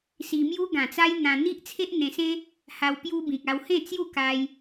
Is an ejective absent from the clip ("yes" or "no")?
yes